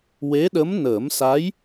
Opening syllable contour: rising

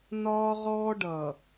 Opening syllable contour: high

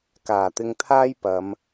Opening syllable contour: low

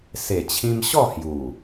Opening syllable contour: low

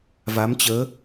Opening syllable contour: rising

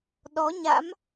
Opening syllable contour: rising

